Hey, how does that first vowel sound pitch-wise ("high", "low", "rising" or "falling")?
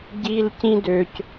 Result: high